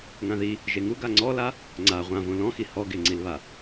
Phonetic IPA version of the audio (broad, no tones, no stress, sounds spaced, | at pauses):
ŋ ã ð i | ʒ e ŋ u ɡ a ŋ͡ǀ ɔ l a | ŋ͡ǀ a ʁʷ ã v õ l ɔ̃ x i h ɔ ɡ e ŋ͡ǀ i l β a